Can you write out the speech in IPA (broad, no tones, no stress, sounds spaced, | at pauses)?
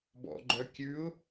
b ɔ̰ ɡ͡ǃ œ kʲ ʉ ʊ̯